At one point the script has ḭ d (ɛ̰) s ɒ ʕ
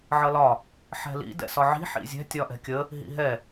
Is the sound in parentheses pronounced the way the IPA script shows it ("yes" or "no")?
yes